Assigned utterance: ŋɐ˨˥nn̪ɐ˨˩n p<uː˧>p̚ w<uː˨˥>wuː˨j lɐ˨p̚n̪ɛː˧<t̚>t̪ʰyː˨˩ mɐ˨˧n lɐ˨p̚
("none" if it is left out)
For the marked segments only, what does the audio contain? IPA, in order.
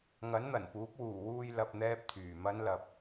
uː˨˥, uː˨˩, p̚

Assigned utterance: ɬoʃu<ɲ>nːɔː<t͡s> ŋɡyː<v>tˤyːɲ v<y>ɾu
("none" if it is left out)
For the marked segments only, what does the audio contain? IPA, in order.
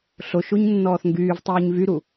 ɲ, θ, v, y

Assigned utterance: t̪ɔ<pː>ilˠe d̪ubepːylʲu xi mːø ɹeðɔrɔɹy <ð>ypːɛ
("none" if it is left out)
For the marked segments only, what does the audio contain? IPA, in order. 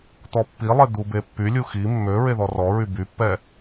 pː, b

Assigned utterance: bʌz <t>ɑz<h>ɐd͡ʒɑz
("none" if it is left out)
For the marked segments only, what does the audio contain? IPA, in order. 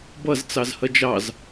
t͡s, h

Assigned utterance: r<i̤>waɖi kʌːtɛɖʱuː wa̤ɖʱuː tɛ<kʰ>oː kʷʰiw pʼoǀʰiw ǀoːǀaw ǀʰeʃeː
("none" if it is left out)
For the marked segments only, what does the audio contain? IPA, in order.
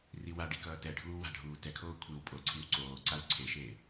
i, kʰ

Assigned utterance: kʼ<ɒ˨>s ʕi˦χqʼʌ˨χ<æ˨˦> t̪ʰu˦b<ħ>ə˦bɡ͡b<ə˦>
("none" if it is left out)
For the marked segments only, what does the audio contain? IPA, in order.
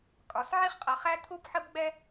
ɒ˨, æ˦, ħ, ɛ˦

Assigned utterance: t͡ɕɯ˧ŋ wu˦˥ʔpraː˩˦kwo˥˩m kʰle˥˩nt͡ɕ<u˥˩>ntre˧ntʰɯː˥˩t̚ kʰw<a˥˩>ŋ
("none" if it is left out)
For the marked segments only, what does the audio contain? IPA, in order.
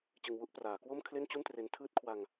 u˥˩, a˧

